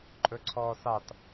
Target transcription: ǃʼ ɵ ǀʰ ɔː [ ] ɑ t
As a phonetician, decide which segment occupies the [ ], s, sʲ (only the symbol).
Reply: s